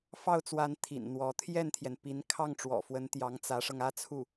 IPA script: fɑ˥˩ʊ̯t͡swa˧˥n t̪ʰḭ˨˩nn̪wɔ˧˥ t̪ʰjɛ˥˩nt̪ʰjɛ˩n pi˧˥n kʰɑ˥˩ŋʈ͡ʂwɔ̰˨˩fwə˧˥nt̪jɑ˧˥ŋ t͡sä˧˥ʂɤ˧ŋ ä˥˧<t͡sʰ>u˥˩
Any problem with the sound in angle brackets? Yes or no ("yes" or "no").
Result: no